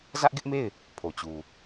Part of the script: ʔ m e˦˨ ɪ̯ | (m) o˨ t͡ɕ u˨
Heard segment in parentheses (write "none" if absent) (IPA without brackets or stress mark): pʰ